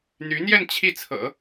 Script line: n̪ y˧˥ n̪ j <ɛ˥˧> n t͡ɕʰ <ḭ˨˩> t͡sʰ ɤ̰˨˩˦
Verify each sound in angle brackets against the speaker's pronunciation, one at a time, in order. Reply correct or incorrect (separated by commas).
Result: correct, incorrect